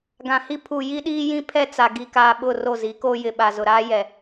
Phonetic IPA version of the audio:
ɡ ã˨ h i˦ pʰ u˨ j i˦ ɗ iː˦ j ĩ˦ pʰ ɛ˦ t͡s a˨ ɡ i˨ k aː˨ ɓ ʊ˦˨ r o˦˨ z i˨˦ k oː˦ j ɪ˨ ɓ a˨ z ʊ˨ ɾ aː˦ j ɛ˨

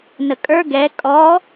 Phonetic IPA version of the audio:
n ə kʼ ə˞ ɡ ɛ kʼ ɔ

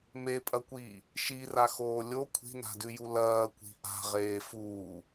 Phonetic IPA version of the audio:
m e pʼ ɐ kʷ iː | ʃ i r a x oː lʲ o kʷʰ i̤ n a̤ d ʉ j u l ɐː kʷ i̤ ʔ a̤ ʁ eː f uː

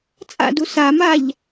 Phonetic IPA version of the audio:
t͡sʼ a̰ d u s a m a ʎ

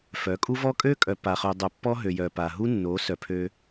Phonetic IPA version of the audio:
f œ˨˦ kʼ u˦ v ɔ˦ kʼ ø˦ kʼ œ˨ p a˨ χ ø˨ dˤ œ˨ pː ɔ˦ ɦ ø˨ j œ˨ p a˨ ɦ u˦ nː o˨˦ s œ˨ pʰ ø˦

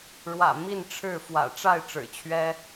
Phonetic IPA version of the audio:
ɻ w ä̰˨˩ m i˥˨ n ʈ͡ʂʰ ɻ̩˥˨ f w ä̰˨˩ ʈ͡ʂ a˥˨ ɪ̯ ʈ͡ʂ ɻ̩˨˩ t͡ɕʰ ɥ ɛ˦

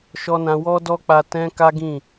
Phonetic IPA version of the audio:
ʃ ɔ˧ n ã˧ w ɔ˦ d ɔ˦ k͡p a˧ t ɛ̃˦ k a˦ ɡ ĩ˦˨

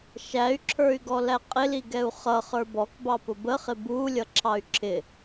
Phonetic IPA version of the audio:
ʃ æ y̯ ǁʰ ə˞ y̯ ɡ ɔ l æ qʼ ɪ l i ɡ ɛ u̯ χ ʌ χ ə˞ b ɔ k b ɑ p ʊ b ə χ ɪ b u lʲ ʌ ǁʰ ɑ y̯ ǁʰ ɪ

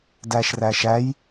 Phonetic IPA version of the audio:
d æ ʃ r æ ʃ æ j

